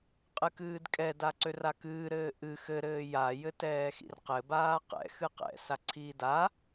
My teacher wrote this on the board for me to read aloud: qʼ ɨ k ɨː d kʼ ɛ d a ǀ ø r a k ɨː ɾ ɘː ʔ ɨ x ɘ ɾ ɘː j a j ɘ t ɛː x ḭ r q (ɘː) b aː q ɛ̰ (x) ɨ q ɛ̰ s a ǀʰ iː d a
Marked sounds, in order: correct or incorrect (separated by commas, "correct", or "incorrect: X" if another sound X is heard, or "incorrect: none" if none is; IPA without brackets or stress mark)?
incorrect: ɘ, correct